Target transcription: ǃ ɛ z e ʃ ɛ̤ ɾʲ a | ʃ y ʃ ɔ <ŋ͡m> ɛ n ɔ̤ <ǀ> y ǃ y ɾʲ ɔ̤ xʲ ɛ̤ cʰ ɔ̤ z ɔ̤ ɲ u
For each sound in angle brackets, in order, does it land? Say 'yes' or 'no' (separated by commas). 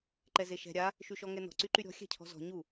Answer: no, yes